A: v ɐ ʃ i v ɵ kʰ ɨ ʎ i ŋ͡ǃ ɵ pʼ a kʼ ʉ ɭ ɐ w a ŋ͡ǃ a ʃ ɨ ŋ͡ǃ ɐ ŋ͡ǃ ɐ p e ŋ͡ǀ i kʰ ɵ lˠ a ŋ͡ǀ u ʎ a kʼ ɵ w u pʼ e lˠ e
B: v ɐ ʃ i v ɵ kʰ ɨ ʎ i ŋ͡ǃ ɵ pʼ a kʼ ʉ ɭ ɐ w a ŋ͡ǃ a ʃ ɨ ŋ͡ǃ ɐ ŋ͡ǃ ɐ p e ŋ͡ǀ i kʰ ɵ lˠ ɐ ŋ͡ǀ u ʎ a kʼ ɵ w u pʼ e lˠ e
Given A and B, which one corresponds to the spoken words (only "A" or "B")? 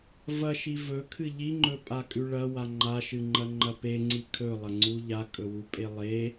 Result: B